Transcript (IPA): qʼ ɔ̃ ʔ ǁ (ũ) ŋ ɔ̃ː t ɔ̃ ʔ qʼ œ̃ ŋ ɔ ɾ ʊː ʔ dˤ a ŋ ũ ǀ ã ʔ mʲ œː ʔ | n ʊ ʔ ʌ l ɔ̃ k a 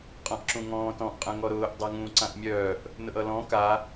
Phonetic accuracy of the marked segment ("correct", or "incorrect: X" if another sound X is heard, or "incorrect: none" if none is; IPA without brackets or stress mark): correct